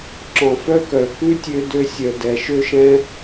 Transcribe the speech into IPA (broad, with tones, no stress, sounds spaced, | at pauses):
ǁ ɔ̃˨ f œ˦ k œ˨ k ʉ˦ tʲ ø˧ d ø˧ sʲ œ˨ d ɛ˨ ʃ ø˦ ʃ ɛ̃˦